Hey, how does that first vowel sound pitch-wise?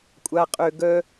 high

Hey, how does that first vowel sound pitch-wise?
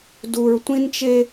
low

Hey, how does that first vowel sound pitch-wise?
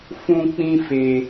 high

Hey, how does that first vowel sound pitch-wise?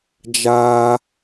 high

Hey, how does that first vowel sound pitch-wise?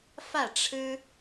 falling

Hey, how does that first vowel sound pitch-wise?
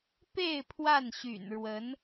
falling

